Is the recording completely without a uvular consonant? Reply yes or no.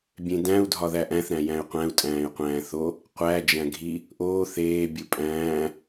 no